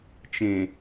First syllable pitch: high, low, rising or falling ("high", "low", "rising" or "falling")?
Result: low